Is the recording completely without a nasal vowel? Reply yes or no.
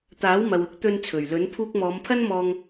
yes